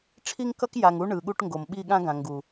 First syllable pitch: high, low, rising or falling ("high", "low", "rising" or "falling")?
high